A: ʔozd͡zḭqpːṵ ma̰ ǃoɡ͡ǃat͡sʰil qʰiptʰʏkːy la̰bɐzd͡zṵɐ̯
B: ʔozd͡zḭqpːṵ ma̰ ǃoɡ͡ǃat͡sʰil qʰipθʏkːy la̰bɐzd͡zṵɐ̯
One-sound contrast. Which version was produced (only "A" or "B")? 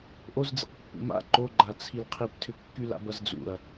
A